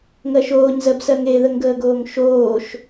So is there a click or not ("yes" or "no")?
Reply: no